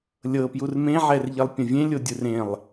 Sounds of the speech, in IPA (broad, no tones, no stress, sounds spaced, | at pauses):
lʲ ɤ p j u r m ẽ ʕ ɛ r ʎ e lˠ pʲ ã vʲ ẽ lʲ o dʲ ɯ r ẽ lˠ